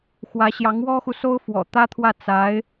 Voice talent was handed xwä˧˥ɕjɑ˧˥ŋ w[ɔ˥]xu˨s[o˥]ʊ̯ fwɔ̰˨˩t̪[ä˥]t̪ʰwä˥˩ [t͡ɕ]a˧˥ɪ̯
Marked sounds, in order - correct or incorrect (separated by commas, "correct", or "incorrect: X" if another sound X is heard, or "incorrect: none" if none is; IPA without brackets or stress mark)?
correct, correct, correct, incorrect: t͡s